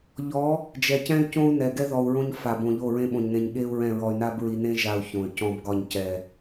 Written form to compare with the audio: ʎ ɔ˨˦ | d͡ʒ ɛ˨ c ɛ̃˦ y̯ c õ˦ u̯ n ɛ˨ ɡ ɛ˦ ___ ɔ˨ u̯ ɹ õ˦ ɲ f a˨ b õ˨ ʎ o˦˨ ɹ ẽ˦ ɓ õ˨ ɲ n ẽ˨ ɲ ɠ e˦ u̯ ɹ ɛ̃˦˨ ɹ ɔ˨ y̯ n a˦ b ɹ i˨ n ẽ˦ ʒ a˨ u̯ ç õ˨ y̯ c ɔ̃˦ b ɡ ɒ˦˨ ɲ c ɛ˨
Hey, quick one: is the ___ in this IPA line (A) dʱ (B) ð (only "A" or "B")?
B